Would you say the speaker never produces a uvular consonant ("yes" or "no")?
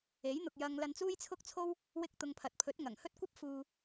yes